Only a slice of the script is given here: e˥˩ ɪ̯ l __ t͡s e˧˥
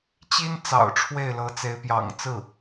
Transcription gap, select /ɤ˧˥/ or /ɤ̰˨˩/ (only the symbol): ɤ˧˥